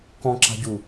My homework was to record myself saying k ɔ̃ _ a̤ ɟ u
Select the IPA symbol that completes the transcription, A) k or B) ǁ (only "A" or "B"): B